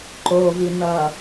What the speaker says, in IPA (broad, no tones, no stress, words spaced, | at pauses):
ǃovi n̪ʌ